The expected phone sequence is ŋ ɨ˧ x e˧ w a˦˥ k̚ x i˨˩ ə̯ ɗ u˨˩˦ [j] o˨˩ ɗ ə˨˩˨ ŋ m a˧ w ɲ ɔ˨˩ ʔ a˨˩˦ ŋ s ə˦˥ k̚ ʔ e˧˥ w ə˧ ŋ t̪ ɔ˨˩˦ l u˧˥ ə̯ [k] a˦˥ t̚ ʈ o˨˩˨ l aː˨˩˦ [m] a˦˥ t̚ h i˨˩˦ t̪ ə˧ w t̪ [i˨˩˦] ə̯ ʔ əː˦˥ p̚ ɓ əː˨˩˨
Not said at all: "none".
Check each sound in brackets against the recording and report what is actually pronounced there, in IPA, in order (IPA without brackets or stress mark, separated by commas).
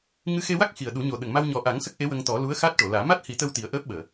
ɲ, x, m, i˨˩˦